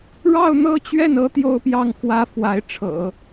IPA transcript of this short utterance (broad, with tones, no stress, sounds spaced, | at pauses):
ɻ ɑ˥˧ ʊ̯ n̪ ɤ˥˧ t͡ɕ ɥ ɛ˥˩ n ɤ˥ t̪ j o˥ ʊ̯ p j ɑ˥˩ ŋ x w ä˥ f w a˧˥ ɪ̯ ʈ͡ʂʰ ɤ̰˨˩˦